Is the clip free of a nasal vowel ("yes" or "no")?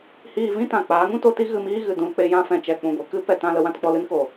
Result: no